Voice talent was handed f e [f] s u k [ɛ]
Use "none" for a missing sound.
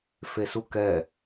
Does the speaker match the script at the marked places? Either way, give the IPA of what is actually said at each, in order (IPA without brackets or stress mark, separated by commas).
none, ɛ